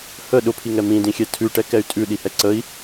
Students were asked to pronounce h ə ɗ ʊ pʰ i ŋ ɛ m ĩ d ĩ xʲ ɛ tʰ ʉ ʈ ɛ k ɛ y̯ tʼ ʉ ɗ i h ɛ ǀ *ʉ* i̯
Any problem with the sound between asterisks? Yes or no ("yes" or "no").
yes